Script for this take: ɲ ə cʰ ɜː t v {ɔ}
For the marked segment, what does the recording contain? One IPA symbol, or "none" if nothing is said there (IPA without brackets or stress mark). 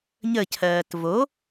o